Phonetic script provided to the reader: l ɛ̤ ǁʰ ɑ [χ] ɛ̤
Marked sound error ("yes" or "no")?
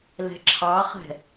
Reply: no